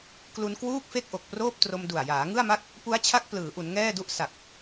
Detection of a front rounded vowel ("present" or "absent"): absent